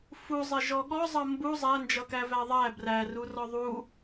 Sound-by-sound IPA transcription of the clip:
fuzˤɛ ʒɔɠɔzˤʌ mbu zˤænd͡ʒʌkæ væðˤæ bræru rɔðˤu

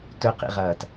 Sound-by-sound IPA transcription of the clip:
tʊqḭʁʌːt

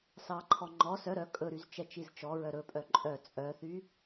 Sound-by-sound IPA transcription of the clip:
sɑǃʰɔ ŋ͡ǃɔ sœ ɾœ kʼɵɾyz t͡ʃɛt͡ʃizt͡ʃɔɹœ ɾɵpʼœ ǃʼœ t͡sʼœθy

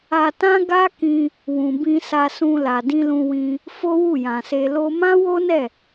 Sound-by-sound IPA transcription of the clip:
a˧tã˦ ɡa˦kĩ˧ | wũ˨bĩ˧ sa˧sũ˧ la˨dĩ˧lũ˧wĩ˧ | fo˦wu˦˨jã˨se˧ lo˧mã˦ wo˦nɛ˦˨

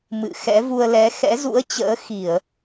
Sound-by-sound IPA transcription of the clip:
mɨ̰˧˨xɛ̰˧˥ vu˧ə̯lɛ˨˦ xɛ̰˧˥zṵ˧˥ə̯t͡ɕə̰ː˧˥ xi˧˩˨ə̯

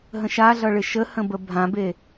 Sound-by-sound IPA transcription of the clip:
ɦə̃ʃaɮʌɭɪ ʃəhə̃bə bʱãbe

